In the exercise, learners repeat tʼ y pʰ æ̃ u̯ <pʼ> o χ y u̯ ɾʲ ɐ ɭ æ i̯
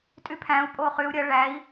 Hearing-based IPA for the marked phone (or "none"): pʼ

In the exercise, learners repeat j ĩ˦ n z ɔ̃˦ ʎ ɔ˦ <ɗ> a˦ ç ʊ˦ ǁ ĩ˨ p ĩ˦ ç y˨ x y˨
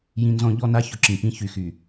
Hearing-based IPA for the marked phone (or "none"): n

